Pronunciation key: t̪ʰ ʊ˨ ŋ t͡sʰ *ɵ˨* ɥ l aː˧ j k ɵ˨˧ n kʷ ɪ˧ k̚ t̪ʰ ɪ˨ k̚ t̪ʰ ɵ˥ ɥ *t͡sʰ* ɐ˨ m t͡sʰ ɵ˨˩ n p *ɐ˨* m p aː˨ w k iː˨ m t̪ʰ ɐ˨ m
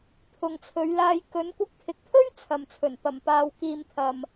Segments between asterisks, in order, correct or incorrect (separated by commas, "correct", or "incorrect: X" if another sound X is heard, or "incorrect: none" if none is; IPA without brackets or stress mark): incorrect: ɵ˨˧, correct, incorrect: ɐ˨˩